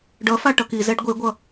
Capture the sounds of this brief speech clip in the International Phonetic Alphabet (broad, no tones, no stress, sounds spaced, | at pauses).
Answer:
ɖ ʌ f a ʈ ʌ k i z ɛ ɖ ɡʷ e ɡʷ ʌ